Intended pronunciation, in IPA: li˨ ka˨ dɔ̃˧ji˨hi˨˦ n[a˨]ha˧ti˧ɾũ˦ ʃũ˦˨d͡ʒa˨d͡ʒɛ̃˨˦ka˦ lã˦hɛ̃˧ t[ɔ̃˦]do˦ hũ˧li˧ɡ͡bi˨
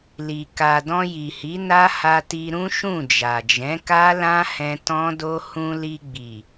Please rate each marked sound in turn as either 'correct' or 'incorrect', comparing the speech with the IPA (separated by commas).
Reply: incorrect, correct